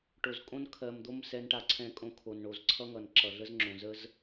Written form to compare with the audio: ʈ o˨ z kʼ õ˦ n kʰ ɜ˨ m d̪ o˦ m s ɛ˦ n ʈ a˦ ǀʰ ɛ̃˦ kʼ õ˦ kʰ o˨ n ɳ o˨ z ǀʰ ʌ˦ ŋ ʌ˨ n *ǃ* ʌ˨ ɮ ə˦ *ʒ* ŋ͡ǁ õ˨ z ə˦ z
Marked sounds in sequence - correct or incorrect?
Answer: incorrect, incorrect

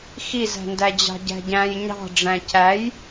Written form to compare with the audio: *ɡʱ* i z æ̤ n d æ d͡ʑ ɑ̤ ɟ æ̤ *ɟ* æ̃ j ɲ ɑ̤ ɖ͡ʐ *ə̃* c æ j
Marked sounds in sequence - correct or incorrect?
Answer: incorrect, correct, incorrect

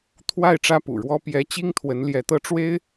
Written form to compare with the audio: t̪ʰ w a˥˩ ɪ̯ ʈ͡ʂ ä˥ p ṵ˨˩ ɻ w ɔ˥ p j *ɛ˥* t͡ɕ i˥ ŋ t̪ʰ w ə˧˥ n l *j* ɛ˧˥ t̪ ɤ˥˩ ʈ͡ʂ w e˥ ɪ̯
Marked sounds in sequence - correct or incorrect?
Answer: incorrect, correct

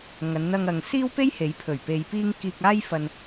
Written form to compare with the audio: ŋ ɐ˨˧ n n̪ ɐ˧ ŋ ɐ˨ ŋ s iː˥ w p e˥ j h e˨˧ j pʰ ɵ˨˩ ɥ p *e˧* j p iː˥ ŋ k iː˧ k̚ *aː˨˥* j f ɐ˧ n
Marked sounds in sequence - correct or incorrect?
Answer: correct, incorrect

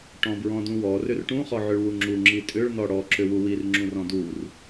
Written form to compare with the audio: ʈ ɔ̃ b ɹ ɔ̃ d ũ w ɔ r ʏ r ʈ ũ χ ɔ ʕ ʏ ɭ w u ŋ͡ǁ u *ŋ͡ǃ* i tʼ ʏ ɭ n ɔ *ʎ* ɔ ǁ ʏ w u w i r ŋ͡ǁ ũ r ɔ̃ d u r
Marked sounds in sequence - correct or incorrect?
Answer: incorrect, incorrect

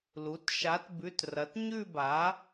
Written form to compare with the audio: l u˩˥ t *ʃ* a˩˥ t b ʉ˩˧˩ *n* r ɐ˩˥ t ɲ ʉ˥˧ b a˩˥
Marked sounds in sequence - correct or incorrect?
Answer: correct, incorrect

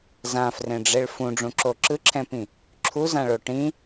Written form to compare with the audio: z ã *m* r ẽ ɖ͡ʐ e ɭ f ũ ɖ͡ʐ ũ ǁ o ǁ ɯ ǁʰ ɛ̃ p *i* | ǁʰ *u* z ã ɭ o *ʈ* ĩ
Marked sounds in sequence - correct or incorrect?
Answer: incorrect, incorrect, correct, correct

